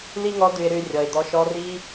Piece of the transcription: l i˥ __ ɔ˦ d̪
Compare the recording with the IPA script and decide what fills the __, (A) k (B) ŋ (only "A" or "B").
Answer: B